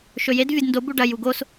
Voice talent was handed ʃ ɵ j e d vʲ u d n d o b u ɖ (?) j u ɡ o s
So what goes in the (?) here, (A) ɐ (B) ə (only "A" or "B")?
A